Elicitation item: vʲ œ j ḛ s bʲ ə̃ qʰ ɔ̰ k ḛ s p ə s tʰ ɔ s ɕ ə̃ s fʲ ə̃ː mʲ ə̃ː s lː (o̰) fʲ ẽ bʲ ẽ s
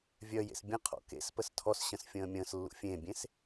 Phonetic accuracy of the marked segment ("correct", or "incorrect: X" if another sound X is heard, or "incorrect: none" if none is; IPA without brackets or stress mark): incorrect: ṵ